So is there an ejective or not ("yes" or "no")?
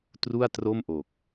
no